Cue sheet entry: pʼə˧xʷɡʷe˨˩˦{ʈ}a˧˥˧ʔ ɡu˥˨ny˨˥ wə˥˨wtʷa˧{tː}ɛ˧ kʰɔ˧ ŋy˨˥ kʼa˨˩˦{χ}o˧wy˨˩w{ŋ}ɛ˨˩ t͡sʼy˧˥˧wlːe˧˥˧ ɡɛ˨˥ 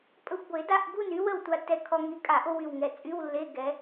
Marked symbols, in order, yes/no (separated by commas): no, yes, no, yes